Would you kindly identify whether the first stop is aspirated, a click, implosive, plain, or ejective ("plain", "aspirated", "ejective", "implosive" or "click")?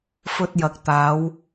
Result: plain